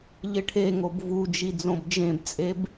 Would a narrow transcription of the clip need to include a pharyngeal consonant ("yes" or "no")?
no